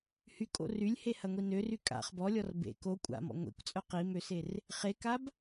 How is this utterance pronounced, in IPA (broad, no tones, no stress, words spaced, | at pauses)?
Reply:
hykʼo̰ rylʲhehɐŋʷi nøry kʼa̰χ bɔlʲɔr bḛ ko kʷʼa̰mɔ̰ ŋʷḛkʷt͡sʼœ qimøser | χekab